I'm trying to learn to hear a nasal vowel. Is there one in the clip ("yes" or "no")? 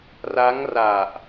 no